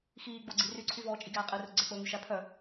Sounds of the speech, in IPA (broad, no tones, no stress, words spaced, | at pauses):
xiːɡ͡boɡ͡ǀi ryǀʰyvɔːt͡ʃʼi ɡæːqʼirɵ ɡ͡ǀɛk͡pɵːŋy ʃæpʰœ